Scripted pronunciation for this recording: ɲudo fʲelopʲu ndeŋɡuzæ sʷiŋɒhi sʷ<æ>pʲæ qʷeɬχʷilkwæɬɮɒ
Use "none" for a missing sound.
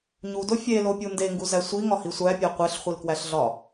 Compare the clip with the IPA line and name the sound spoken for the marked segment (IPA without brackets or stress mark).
æ